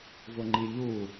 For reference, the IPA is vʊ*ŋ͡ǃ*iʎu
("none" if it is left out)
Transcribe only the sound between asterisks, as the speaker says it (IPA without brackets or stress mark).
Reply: ŋ͡ǃ